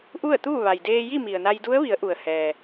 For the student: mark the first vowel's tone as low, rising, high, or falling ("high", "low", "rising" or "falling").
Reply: falling